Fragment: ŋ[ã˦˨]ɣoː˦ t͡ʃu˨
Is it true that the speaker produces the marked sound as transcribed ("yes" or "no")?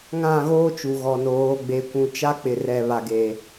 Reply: yes